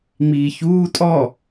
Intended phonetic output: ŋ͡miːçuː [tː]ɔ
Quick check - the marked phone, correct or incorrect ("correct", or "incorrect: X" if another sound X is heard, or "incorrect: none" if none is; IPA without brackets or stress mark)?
incorrect: tʼ